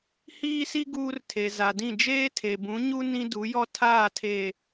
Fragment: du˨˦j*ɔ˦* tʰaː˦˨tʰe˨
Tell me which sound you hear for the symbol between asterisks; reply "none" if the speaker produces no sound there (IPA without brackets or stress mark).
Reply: ɔ˦